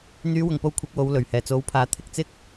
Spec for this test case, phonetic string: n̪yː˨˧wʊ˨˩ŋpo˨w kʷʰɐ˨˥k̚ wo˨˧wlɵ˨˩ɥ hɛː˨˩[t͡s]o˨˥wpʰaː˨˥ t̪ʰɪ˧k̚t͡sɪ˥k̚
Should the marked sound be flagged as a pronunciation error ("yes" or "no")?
no